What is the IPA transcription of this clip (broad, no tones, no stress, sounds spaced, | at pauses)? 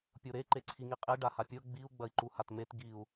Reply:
pʲ o ɾ e ǃ e ǀʰ i ŋ i qʼ e ɖ a h a pʲ ɤ ɡ͡b i u̯ ɡ͡b ɐ i̯ ǃ u h a t m e t ɡ i u̯